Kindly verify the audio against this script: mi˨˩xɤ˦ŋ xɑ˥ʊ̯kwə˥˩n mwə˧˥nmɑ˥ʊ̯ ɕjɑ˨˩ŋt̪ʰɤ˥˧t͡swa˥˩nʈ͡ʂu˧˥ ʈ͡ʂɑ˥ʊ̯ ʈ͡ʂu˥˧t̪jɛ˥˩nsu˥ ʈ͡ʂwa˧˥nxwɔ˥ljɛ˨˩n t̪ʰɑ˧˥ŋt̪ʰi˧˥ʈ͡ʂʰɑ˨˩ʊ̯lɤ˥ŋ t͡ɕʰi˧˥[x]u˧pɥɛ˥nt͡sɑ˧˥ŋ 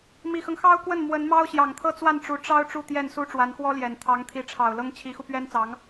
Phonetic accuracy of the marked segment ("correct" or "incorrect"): correct